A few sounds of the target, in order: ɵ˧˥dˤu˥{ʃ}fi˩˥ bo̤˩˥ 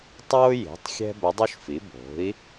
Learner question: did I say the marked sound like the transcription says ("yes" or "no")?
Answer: yes